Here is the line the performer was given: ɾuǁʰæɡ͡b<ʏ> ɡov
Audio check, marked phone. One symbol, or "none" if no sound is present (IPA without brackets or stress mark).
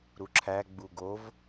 u